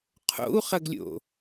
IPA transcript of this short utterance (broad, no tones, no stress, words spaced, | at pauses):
qʰo̰u̯χɐɡlʲo̰